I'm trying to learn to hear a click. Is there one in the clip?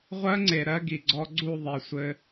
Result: yes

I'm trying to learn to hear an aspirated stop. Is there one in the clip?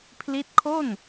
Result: yes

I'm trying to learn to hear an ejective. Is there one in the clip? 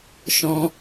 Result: no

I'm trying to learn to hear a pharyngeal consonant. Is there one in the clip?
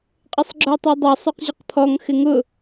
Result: no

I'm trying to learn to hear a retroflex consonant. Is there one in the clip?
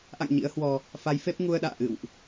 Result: no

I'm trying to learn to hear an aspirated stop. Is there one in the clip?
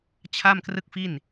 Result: yes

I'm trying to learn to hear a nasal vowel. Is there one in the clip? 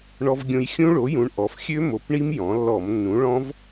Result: yes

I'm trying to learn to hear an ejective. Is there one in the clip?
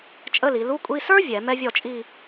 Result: yes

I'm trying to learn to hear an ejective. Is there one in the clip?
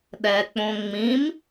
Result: no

